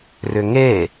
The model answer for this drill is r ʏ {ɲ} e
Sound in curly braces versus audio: incorrect: ŋ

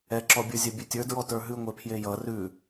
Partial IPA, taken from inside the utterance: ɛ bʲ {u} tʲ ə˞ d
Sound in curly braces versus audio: incorrect: ʉ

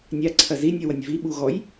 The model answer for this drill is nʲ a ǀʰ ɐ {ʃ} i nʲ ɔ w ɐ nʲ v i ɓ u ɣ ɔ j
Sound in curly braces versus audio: incorrect: z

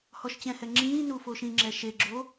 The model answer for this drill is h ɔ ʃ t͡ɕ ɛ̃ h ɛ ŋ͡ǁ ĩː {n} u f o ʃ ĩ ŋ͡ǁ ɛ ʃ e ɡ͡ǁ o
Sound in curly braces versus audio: correct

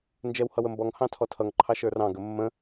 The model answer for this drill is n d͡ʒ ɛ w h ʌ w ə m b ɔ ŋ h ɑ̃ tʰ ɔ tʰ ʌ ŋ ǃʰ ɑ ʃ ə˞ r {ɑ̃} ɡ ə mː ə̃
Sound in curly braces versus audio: correct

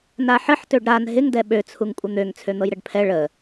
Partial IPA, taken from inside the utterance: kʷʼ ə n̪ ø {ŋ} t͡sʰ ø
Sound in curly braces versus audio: correct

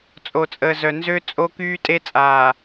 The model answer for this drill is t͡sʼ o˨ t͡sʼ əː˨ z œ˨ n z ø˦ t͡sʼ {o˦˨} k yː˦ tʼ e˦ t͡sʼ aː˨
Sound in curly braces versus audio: incorrect: o˦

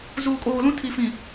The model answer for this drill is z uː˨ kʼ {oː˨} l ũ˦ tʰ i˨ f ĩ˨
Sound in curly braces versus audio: correct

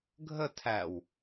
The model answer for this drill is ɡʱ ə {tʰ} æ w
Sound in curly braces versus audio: correct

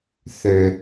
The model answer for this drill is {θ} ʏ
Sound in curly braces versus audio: correct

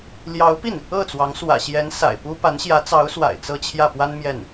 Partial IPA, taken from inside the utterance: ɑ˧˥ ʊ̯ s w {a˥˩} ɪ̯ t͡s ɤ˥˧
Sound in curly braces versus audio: incorrect: a̰˨˩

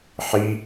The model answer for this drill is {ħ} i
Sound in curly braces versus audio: correct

